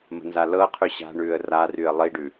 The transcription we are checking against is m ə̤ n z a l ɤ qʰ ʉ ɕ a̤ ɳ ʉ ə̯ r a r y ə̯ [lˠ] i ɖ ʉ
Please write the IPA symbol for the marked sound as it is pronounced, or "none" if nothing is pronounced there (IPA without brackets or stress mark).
lˠ